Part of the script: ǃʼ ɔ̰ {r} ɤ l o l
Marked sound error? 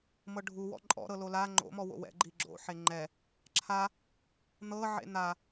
yes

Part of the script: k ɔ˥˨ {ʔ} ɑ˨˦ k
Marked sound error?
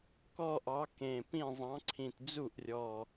no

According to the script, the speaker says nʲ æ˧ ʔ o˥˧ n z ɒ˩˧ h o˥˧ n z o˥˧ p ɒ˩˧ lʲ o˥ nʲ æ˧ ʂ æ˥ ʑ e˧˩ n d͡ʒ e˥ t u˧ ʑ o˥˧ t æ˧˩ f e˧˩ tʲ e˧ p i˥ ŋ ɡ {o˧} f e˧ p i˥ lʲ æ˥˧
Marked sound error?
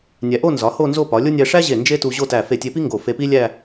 yes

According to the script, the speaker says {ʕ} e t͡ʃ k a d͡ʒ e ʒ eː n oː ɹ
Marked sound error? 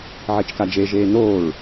no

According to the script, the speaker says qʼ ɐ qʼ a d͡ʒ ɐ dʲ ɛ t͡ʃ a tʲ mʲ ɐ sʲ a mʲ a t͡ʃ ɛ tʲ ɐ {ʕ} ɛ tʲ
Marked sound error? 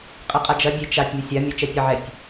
no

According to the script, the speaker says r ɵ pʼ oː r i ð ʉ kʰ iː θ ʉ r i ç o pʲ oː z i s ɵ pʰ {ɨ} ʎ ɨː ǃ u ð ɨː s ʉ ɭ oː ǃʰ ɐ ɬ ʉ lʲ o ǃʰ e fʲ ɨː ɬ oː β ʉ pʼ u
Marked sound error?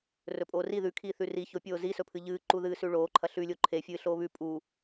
no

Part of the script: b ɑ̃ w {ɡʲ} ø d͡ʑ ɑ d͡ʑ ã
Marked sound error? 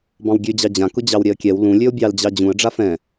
no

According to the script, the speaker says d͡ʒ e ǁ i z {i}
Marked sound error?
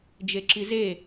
yes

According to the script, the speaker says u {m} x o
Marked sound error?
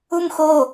no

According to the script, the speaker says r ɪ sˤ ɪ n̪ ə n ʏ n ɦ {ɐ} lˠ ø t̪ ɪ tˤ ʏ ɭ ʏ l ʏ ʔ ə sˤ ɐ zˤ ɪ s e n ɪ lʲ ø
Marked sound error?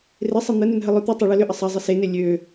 yes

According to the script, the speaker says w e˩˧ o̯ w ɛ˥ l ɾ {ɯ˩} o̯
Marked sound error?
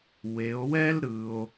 no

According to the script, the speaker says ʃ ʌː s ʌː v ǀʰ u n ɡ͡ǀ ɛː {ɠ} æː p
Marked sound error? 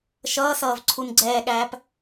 no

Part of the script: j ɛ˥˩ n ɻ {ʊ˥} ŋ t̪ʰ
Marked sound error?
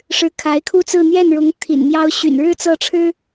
yes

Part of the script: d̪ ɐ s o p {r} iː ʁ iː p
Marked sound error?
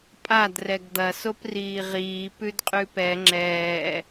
no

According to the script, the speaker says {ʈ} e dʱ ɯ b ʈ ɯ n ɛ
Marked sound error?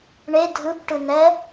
yes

